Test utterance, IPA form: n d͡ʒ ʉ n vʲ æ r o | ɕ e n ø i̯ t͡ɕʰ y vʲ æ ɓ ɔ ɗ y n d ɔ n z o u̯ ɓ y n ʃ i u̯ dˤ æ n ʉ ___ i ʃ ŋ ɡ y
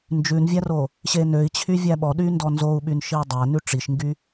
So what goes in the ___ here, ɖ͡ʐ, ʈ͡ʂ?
ʈ͡ʂ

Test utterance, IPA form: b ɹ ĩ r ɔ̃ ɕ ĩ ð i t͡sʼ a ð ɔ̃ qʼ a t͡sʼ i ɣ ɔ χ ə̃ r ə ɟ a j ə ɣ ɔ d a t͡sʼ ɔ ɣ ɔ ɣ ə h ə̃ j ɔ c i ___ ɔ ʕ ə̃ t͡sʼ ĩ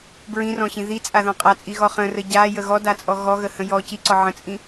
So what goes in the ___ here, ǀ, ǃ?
ǀ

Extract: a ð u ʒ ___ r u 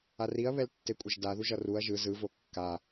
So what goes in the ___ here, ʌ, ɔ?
ʌ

